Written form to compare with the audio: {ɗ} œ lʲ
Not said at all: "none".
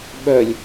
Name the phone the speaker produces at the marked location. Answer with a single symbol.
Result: ɓ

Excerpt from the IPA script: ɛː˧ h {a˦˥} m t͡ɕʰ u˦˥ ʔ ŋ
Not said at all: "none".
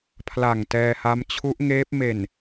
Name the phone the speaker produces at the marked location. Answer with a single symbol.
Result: a˦˥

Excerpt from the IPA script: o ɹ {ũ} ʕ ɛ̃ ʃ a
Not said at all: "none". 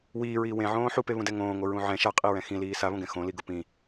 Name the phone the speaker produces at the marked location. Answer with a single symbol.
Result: ũ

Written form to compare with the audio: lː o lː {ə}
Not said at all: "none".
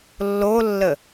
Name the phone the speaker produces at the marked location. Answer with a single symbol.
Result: ə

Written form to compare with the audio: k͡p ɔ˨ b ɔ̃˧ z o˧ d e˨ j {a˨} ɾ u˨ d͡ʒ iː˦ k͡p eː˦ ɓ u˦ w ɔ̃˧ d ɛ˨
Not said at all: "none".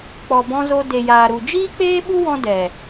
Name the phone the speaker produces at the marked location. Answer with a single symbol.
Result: aː˨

